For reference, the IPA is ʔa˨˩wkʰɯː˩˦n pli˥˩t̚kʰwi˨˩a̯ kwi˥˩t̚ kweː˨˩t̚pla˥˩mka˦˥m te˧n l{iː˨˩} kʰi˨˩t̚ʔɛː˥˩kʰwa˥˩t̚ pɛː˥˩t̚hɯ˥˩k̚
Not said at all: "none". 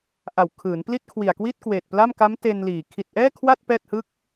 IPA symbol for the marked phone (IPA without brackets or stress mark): iː˨˩